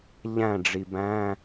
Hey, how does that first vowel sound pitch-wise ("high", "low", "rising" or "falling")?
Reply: falling